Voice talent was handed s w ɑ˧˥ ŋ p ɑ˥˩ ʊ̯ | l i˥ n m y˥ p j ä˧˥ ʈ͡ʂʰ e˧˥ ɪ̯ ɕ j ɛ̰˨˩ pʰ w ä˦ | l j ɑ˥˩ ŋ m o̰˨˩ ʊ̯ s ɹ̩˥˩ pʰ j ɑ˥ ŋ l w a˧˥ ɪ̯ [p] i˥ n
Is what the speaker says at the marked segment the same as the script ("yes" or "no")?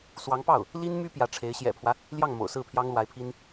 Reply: no